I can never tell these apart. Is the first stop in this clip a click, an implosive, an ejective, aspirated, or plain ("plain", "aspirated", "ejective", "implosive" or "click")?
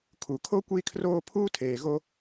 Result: aspirated